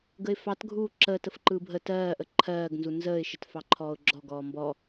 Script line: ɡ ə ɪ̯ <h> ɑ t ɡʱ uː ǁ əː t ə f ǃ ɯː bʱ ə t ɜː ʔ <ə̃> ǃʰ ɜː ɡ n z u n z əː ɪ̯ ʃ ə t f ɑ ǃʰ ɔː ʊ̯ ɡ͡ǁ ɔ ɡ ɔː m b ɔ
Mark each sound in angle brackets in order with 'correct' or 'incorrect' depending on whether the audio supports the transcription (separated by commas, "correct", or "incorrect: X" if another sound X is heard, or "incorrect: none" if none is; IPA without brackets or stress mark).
incorrect: f, incorrect: ə